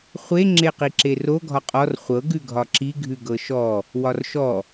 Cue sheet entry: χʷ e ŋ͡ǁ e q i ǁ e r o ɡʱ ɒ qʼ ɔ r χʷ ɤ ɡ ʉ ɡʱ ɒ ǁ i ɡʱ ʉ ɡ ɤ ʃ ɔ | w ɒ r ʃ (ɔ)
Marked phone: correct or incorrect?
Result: correct